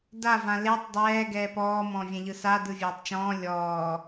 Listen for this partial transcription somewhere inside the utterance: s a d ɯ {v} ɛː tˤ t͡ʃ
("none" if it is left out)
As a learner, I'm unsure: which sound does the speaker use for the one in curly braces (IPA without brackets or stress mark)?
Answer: vʲ